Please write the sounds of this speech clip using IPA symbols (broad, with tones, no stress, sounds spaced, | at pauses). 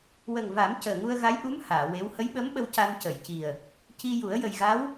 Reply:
w ə˨˩ ŋ v a˨˩˦ m c əː˨˩ ŋ u˧ ə̯ ɣ a˧˥ j ʔ u˧˥ m h aː˨˩˨ w e˧˥ w h ə˧˥ j ɓ ə˧˥ m ɓ ə˧ w c a˧ n c ə˨˩˨ j c i˨˩ ə̯ | c i˧ j u˨˩˦ ə̯ j ə˨˩ j ɣ a˧˥ w